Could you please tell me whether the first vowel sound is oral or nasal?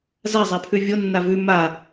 oral